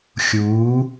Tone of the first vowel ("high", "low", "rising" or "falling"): rising